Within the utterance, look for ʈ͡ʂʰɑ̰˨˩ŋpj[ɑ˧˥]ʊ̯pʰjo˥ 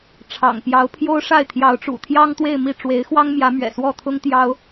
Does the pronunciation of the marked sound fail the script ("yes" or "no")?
no